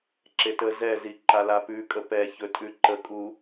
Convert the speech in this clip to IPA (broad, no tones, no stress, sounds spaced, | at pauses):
ǁ e t ə z ɛ z i ǃ a l a p ʉ kʼ ə p ɛ ç ɵ tʼ ʉ ǃ ə kʼ u